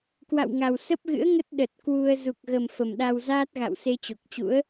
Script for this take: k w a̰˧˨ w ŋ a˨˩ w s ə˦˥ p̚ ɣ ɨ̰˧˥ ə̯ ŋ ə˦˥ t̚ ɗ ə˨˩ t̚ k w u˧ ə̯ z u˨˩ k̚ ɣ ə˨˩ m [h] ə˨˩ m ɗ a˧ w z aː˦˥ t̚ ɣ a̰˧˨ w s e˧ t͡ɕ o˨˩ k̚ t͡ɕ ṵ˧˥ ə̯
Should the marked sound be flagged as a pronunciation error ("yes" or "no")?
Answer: yes